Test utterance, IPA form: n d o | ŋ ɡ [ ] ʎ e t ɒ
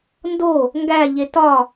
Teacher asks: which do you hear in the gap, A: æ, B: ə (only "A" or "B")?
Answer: A